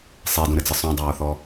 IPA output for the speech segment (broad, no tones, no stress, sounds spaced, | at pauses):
sˤ e d ũ ɾ ɘ d͡z ɨ sˤ ũ dˤ oː θ ɔ